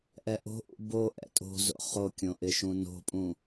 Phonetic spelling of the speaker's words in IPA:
ʔ ɛ ʔ o̤ ʔ ṵ b o ʔ ɛ̰ tʼ o̤ z o̰ χ o kʲ õ ʔ ɪ ʃ ũ n o̤ pʼ ũ

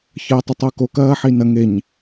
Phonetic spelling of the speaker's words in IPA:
ç əː e̯ tˤ ə tˤ o k o k ɐː ħ i n ɐ ŋ e ɲ

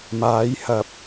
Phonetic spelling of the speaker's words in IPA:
m aː˨˥ j h ɐ˨˥ p̚

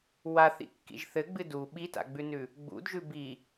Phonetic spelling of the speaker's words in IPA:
w a θ ḭ kː ḭ ʒ θ ɘ ɡ͡b ɨ d u ɓ i t a̰ ɡ͡b ʉ n ʉ | ɡ͡b ṵ d ʒ ʉ b i

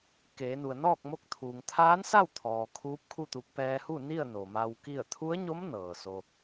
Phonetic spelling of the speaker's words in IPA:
k eː˩˧ n u˩ ə̯ n ɔː˥˨ k̚ m o˧ k̚ t̪ʰ uː˩ ŋ t̪ʰ aː˧˥ n s a˥˨ w t̪ʰ ɔː˩ kʰ uː˧˥ p̚ kʰ u˥˨ t̪ u˧ k̚ p ɛː˧ h u˥˨ n i˥˨ ə̯ n o˩ m a˧ w k i˥˨ ə̯ t̪ʰ u˧˥ ə̯ ɲ o˧˥ m n ɤː˩ s o˧

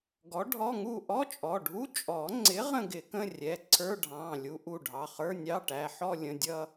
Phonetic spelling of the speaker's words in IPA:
ɡ ɔ˨˥ ɖʱ ɔ˧˥˧ ŋ u˥˧ ʔ ɔ˧˥˧ t͡ʃʼ ɔ˩˧˩ ɖʱ u˧˥˧ t͡ʃʼ ɔ˨˩˦ ŋ͡ǀ ɪ˨˥ ʁ ə̃˥˧ ɡ ɪ˨˩˦ k ə̃˧˥˧ rʲ ɛ˩˧˩ ǀʰ ə˞˧˥˧ ɖʱ ɑ̃ː˩˧˩ lʲ u˨˥ ʔ u˩˧˩ ɖʱ ɑ˩˧˩ χ ə˞˧˥˧ nʲ ɑ˧˥˧ ʈ æ˩˧˩ ħ ɔ˥˧ lʲ ə̃˩˧˩ dʲ ʌ˥˧

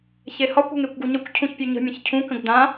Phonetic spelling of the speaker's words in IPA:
ç e h ɒ kʷ ə̤ ŋ e kʷ ɡ u ɲ ə kʷ cʰ ũ ç pʲ ʉ ɲ ə̤ mʲ ə̃ ç cʰ ũ k ə̃ ɡ d ã

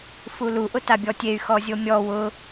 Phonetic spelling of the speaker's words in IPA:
f u l u ʔ ʊ t a bʲ ɔ tʲ e y̯ x ɔ zʲ o mʲ ɔ w ʊ

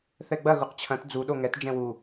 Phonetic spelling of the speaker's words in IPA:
θ ɛ ɡ͡b ɐ ɣ u q t͡ɕʰ ɐ̃ t d͡z u ɗ o ŋ ɛ t d͡ʒ ɛ̃ w u

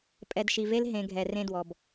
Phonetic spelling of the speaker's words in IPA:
pʼ ɛ˨ d ʃ i˨ v e˦ l ɦ ẽ˨ ɡʱ ɛ˨ r ẽ˦ d w ɔ˨ b

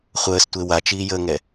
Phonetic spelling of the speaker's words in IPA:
χʷ əː s tʷ e w a t͡ʃ iː j əː ŋ ɛ

